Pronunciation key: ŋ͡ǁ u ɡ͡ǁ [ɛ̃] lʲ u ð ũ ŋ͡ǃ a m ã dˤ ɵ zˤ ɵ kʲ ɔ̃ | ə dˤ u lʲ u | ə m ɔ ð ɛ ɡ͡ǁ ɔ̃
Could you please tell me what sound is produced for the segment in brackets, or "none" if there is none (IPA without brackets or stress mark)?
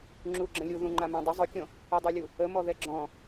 ə̃